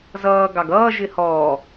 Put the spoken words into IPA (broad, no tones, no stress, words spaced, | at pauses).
zʌː ɡɑɡʌː ʒɪhɔː